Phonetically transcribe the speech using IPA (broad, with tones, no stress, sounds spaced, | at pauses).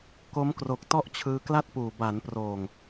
k o˦˥ m k r o˨˩ k̚ t ɔ˥˩ ʔ t͡ɕʰ ɯː˧ k l a˥˩ t̚ p uː˨˩ b a˩˦ n p r oː˨˩ ŋ